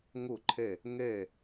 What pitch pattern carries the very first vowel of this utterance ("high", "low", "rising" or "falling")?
falling